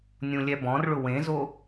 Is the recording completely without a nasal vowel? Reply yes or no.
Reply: no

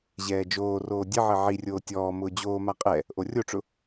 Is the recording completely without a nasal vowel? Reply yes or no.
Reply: yes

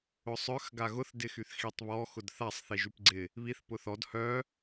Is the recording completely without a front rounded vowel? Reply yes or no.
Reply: no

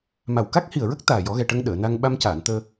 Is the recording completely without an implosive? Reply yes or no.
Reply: no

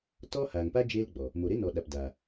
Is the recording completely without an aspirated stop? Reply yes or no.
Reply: yes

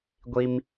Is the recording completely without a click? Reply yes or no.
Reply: yes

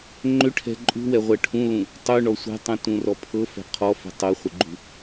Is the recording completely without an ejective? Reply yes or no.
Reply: no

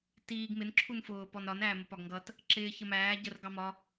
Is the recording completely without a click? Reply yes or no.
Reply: no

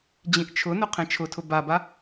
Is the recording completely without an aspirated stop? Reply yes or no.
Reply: no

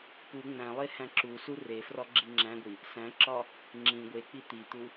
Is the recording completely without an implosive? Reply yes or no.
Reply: yes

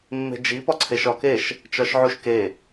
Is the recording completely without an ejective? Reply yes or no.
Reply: yes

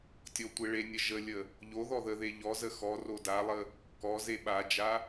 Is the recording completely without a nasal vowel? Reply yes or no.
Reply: yes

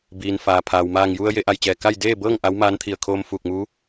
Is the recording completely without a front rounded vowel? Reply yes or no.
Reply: yes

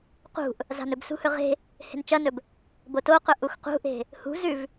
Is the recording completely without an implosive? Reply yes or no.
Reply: yes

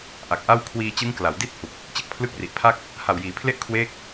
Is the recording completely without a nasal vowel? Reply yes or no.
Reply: yes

